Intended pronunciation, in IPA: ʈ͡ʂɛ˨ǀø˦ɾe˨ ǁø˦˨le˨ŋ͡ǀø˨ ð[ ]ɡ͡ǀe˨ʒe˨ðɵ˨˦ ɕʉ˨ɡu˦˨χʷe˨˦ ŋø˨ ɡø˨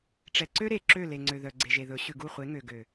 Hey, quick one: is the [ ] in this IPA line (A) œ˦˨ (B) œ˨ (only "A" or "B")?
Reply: B